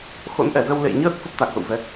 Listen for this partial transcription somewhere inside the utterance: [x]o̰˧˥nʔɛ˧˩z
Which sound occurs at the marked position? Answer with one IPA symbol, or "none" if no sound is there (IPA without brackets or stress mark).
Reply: x